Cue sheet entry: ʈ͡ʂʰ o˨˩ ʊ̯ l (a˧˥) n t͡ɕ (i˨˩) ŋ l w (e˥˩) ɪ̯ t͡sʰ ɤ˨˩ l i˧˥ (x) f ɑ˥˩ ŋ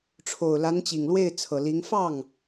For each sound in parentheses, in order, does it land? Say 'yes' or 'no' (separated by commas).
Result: yes, yes, yes, no